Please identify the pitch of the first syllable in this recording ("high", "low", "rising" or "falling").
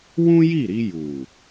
high